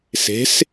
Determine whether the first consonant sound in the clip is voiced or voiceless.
voiceless